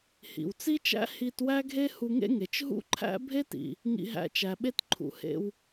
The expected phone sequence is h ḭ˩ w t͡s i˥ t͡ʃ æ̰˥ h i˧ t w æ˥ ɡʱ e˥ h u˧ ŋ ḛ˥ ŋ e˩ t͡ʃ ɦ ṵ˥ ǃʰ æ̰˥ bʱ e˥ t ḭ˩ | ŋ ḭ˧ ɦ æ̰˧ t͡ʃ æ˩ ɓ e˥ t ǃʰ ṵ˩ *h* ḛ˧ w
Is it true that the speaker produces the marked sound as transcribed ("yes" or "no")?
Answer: yes